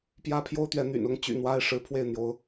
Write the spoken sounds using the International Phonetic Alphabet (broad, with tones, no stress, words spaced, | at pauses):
pjä˦pʰjo˦ʊ̯t̪ɥɛ˨˦ n̪y̰˨˩nʊ˥˨ŋ t͡ɕy̰˨˩ n̪wa˦ɪ̯ ʂɻ̩˨˦pʰwe˥˨ɪ̯n̪jo˨˦ʊ̯